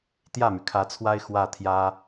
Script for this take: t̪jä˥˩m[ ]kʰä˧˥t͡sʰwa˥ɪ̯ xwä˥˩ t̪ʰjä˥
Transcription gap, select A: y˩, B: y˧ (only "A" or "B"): A